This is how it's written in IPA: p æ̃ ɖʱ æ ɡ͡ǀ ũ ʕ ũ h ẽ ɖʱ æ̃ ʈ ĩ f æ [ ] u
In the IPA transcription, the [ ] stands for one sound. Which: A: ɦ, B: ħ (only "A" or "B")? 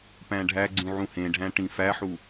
B